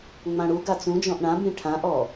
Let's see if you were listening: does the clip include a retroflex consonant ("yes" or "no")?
yes